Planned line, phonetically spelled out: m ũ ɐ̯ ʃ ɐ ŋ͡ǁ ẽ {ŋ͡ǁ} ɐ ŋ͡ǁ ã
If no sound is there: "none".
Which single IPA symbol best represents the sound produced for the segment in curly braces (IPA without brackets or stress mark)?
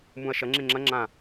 ŋ͡ǁ